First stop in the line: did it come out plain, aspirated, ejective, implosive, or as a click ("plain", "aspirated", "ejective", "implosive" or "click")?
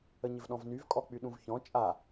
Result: implosive